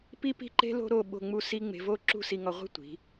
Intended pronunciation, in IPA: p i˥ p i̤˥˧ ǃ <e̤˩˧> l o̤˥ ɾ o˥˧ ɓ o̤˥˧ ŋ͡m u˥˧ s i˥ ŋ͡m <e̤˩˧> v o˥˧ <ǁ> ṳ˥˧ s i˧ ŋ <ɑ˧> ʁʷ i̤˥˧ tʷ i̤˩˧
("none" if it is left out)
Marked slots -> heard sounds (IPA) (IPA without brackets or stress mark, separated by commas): e̤˥, e̤˧, ǁ, ɒ˧